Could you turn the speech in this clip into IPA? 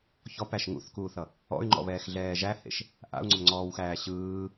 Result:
ç ɔ p æ ʃ ŋ ṵ θ k uː θ ʌ | ɔ̰ y̯ ŋ͡ǃ ɔ̰ β ɛː x ɮ ɛː ʒ æ h ḛ ʃ | ʔ a̰ u̯ ŋ͡ǀ ʏ m ŋ͡ǀ ɔː w x æː ɕ ɯː

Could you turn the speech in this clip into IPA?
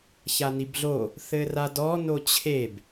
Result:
ç a n i b ɮ o | θ ɘ r a d ɔ n o t͡ɕʰ e b

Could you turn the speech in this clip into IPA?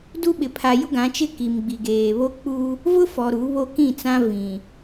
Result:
d u˦ ɓ ɪ˨ pʰ a˨ j ʊ˦ ɡ ã˨˦ t͡ʃ ɪ˦ k i˨ m ɡ͡b i˨ ɡ eː˨ β o˦ k͡p u˦ | v ʊ˦ f ɔ˨ ɾ u˨˦ β o˦ k ĩ˦˨ t͡s ã˦ v ĩ˨

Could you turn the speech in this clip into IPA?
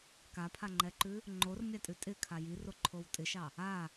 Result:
k a pʰ a ŋ͡ǃ ɛ ǃ ʉ | ŋ͡ǃ o r mʲ a tʼ ʉ tʼ ɪ kʰ a j i r o ǃʰ o w tʼ ɪ ʃ ɑ | a

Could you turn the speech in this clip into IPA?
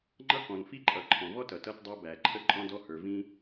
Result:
ŋ͡ǃ ʌ˥ k ɔ̃˩ n f i˥ ǃʼ ʌ˩ ǃʰ ɔ̃˩ v ɔ˥ t ʌ˩ t ʌ˧ t dˤ ʌ˧ b æ˩ ǃʰ ə˥ ǃʼ ɔ̃˥ d ɔ˥ h ə˞˩ v ĩ˥

